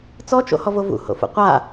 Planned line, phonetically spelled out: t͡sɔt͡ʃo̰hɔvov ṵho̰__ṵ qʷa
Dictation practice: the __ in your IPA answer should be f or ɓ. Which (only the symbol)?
f